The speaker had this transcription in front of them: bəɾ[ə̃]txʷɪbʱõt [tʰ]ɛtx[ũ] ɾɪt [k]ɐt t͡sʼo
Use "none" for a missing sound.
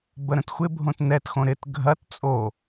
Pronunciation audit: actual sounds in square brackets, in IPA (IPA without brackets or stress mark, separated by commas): ə̃, n, õ, ɡʱ